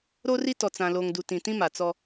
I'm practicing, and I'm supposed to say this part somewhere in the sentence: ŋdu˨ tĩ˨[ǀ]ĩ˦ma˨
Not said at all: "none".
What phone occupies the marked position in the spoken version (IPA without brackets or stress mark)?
t